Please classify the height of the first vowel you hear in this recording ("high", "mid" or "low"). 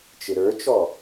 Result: high